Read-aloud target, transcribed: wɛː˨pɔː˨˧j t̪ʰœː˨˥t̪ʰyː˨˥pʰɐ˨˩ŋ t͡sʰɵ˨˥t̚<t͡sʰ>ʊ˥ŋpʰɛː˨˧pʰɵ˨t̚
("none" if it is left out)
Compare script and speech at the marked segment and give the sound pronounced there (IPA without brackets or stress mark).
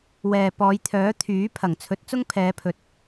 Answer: t͡s